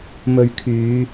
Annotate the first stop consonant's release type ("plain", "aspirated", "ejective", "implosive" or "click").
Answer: aspirated